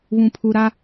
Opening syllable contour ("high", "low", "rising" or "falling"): low